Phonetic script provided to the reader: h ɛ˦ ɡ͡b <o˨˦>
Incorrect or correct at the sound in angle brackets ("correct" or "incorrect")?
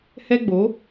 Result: correct